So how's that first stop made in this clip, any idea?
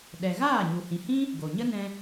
implosive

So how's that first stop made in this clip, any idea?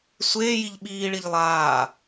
implosive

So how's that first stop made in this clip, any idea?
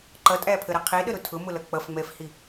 click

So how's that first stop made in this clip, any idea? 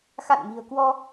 plain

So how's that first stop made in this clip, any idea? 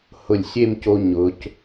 plain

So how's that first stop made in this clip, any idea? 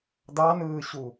plain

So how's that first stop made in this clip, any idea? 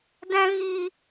plain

